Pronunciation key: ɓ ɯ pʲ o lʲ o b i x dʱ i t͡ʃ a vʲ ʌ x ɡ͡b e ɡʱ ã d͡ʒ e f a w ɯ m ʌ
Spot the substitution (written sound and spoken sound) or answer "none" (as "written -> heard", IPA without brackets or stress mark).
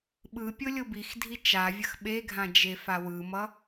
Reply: ɡ͡b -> ɓ